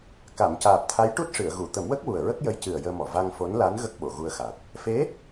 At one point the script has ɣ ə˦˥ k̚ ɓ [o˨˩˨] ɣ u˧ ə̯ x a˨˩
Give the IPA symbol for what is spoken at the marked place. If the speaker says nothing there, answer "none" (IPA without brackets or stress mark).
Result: o˨˩˨